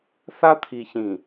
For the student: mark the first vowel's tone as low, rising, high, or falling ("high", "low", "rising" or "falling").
high